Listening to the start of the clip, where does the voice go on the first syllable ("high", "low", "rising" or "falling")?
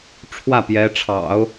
falling